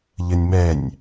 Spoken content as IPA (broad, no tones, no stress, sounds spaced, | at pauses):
ʎ ə nʲ m ɛ nʲ